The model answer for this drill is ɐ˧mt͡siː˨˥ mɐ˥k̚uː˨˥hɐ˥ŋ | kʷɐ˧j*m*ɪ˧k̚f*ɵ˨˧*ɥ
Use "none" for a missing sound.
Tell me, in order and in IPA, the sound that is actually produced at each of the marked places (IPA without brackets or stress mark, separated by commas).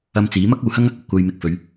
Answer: m, ɵ˨˧